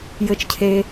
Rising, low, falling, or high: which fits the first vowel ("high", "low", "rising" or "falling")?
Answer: rising